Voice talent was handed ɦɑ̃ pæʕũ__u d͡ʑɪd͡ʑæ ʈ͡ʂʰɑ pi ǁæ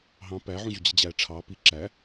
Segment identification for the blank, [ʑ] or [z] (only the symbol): ʑ